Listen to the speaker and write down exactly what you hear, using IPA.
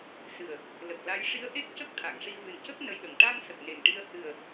s ɨ˨˩ ə̯ | l ə˨˩ k̚ l a˧˥ j ʂ i˧˥ ə̯ ʔ e˦˥ k̚ c ə˦˥ k̚ t̪ʰ a˨˩˨ ŋ ʂ i˧ v ɨ˨˩ n c ə˦˥ k̚ n ə˧ j ɗ ə˨˩ ŋ ʈ a˧ ŋ s ə˨˩ k̚ n e˨˩ ŋ ʈ i˧ ə̯ h ɨ˨˩ ə̯

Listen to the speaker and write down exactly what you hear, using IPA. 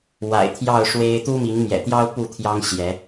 w a̰˨˩ ɪ̯ t̪ʰ j ɑ˥˨ ʊ̯ ʂ w e˦ ɪ̯ t̪ u˦ m i˨˦ ŋ m j ɛ̰˨˩ t̪ j ɑ˦ ʊ̯ p u˥˨ t̪ʰ j ɑ˦ ŋ ɕ j ɛ˨˦

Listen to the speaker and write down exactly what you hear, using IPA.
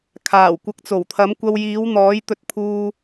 kʰ aː˨˩ w kʷ ɐ˨ k̚ t͡s o˨˩ w t̪ʰ ɐ˨˥ m kʷ ɐ˧ w j iː˨˥ w n̪ ɔː˨˥ j t̪ ɵ˧ t̚ pʰ uː˧

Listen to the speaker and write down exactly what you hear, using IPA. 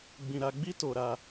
ɡ͡b ĩ˧ ɾ a˧ ɡ͡b i˦ t o˧ ɾ a˧

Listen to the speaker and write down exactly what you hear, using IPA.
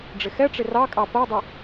ɖ͡ʐ ɪ x ɛ ʈ͡ʂ ɪ r ɑ kʼ ɑ p ɜ dˤ ʊ

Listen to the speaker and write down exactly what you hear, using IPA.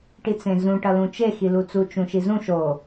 ʈ i t͡s ẽ z ũ ʈ ʌ l ũ t͡ʃ e x i l u t͡s u t͡ʃ ũ ʃ i z ũ ʃ o

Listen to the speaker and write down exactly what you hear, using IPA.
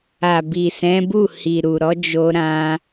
a˨ b i˨ s ɛ̃˨˦ b u˦˨ h i˨ ɾ u˨ ɾ ɔ˨˦ d͡ʒ o˧ ɾ ã˧

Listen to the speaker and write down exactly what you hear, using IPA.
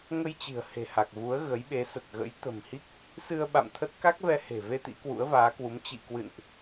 ŋ ə˧ j t͡ɕ i̤˨˩ ə̯ h e̤˨˩ h a˨˩ k̚ v u˨˦ ə̯ ɣ ə˨˦ j ɓ e˨˦ s ə˨˩ t̚ ɣ ə̰˧˥ j t̪ ə̤˨˩ m h i˦˥ k̚ | s ɨ˧ ə̯ ɓ a̰˧˨ m t̪ʰ ə˦˥ t̚ k a˦˥ k̚ v ɛ˧ h e̤˨˩ v e˧ t̪ ḭ˧˥ k w ṵ˧˥ ə̯ v aː˨˦ k w u˨˦ m t͡ɕ ḭ˧˨ k w ɨ̰˧˨ n ʔ

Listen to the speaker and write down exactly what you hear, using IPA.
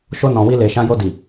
ʃ o˧ n ɔ̃˨ w i˧ l e˨ ʃ ã˧ j o˧ d i˨

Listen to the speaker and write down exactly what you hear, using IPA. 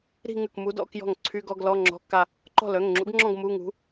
ɾ i̤˥˧ ŋ ʉ˥˩ k m u˧˥ d ɔ̰˧˥˧ k j ɔ̤˥˩ ŋ ǀʰ y˧˥˧ ɡ ɔ˧˥˧ ɡ l ɔ˧˥˧ ŋ͡ǁ ɔ̤˧˥˧ kː a˥˧ | ǃ ɔ̤˥˩ l œ˩˧˩ ŋ ŋ͡ǁ ṵ˧˥ ɡ ŋ͡ǁ ɔ̃˥˧ ɡ m u˧˥˧ ŋ ṳ˧˥

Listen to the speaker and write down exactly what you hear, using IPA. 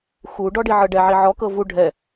x u ɖ ɔ ɖ i ʕ ɤ ɖ ɛ ʕ i ʕ ɔ k ɤ v u ɖʱ ɛ

